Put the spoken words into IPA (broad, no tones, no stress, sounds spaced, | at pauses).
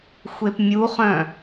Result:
xʷ e p mʲ u χ œ̃